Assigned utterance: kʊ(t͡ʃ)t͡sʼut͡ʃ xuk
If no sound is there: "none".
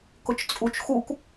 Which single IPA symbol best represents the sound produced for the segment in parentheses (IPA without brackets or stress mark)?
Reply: t͡ʃ